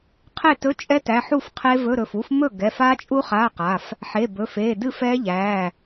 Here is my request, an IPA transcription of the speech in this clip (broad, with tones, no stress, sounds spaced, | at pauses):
qʰ e˥˩ t ɵ˧˥˧ t͡ʃʼ ɛ˦˥ t æ˩˧˩ ħ u˥˩ f qʰ e˦˥ v ɵ˧˥˧ ɾ ɵ˩˧˩ f u˦˥ f m ɵ˥˩ ɡ ɛ˩˧˩ f a˦˥ t͡ʃʼ u˦˥ χ a˧˥˧ q a˩˧˩ f | ħ e˩˧˩ b ɵ˩˧˩ f e˩˧˩ d ɨ˥˩ f ɛ˦˥ ʎ æ˩˧˩